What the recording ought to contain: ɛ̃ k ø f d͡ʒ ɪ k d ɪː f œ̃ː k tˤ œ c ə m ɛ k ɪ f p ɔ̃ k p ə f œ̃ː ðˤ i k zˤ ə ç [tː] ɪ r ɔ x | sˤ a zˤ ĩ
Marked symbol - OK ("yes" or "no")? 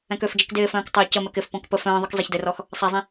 no